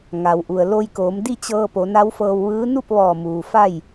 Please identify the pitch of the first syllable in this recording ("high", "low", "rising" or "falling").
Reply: low